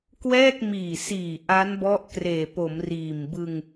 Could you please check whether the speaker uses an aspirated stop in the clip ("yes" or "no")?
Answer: no